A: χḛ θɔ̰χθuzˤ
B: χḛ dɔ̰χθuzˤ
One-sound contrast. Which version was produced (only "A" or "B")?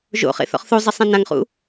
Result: A